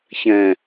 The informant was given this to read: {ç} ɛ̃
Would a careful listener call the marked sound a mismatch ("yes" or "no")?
no